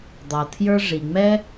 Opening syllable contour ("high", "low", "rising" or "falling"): low